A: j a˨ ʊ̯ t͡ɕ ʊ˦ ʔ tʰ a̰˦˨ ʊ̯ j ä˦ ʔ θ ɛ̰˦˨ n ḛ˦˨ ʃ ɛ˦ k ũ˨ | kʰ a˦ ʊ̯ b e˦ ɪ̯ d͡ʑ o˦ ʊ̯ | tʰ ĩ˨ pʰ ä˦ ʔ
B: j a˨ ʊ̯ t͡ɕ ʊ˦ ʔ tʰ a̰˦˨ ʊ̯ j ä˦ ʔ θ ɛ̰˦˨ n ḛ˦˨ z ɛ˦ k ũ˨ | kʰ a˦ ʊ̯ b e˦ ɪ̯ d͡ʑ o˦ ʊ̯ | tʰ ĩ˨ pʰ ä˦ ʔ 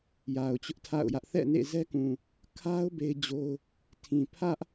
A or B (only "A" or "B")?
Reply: B